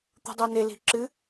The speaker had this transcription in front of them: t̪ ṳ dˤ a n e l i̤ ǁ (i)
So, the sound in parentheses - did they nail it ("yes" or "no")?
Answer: no